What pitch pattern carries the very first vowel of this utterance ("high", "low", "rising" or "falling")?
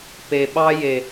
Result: low